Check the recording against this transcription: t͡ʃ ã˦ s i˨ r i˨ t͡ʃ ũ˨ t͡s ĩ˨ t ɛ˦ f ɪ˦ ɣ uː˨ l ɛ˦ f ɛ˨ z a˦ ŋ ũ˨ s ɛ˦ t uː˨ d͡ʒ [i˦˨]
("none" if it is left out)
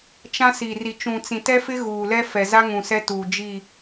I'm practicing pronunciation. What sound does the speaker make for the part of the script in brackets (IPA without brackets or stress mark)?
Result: i˦˨